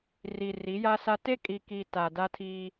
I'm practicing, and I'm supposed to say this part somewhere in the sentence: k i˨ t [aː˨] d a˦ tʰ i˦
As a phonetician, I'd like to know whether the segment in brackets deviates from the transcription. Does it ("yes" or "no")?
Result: yes